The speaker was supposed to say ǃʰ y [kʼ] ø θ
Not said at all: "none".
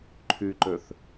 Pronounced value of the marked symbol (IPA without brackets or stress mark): ǃ